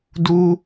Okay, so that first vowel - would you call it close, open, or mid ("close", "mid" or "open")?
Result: close